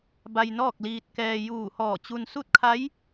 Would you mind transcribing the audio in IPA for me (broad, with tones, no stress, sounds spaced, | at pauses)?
b a˧ j n ɔː˥˨ k̚ l iː˧ t̚ k ɛː˧ j uː˧˩ h ɔː˧˩ t͡ɕ u˧ n s u˥˨ t̚ kʰ a˧˥ j